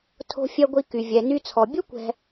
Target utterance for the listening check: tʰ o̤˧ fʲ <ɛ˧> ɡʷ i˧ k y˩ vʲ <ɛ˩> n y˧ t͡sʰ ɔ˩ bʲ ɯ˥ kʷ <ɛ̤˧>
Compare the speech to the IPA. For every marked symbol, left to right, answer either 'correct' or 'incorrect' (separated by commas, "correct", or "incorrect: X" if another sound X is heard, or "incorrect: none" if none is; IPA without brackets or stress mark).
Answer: correct, correct, correct